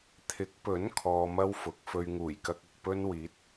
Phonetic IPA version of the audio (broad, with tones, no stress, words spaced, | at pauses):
t̪ʰɪ˨˥k̚pɵ˨˥n kʰɔː˧mɐ˥wfʊ˨˥k̚ fɵ˧ɥŋuː˨˩jkɐ˧k̚ ɐ˨k̚pɵ˥n wiː˨˥t̚